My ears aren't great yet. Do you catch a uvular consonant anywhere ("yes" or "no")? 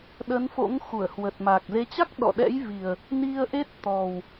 no